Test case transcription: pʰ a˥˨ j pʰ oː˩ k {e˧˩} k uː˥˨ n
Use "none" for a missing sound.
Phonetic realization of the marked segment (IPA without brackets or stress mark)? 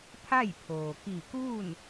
i˧˩